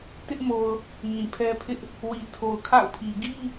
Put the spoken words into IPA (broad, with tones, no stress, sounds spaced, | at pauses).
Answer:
t ɪ˦ ʔ m o˨ ʊ̯ | ŋ ĩ˨ pʰ ɛ˦ pʰ ɪ˦ ʔ | w i˨ tʰ o˨ ʊ̯ kʰ a̰˦˨ ʊ̯ pʰ i˨ ɡ i˦